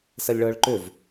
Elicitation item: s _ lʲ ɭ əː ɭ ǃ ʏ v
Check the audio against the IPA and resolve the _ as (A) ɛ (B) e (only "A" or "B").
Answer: A